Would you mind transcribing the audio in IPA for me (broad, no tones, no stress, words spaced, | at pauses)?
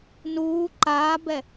nuː ǃaːbɛ